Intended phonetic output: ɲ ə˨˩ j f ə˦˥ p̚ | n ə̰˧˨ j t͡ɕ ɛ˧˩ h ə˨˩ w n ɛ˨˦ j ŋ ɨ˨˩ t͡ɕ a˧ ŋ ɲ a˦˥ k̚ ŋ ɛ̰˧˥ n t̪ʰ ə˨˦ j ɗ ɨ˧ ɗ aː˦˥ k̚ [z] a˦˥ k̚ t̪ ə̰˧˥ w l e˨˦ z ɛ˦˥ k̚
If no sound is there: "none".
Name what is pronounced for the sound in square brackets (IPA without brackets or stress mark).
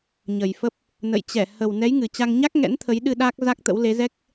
z